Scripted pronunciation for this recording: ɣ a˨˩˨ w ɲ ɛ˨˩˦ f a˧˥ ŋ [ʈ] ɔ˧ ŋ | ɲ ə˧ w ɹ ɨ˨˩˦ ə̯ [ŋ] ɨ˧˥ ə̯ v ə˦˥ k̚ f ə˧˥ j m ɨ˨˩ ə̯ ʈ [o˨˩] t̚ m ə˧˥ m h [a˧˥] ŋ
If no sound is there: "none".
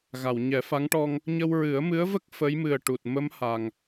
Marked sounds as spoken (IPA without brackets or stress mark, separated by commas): ʈ, m, u˨˩, a˨˩